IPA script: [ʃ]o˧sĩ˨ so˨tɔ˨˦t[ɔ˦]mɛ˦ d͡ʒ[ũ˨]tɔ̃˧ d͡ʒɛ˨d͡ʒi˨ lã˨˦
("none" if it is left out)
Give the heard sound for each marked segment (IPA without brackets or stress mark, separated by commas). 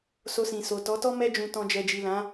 s, ɔ˦, ũ˧